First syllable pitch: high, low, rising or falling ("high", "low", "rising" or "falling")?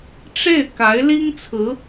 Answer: falling